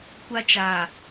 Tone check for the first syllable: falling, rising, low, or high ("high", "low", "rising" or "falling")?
high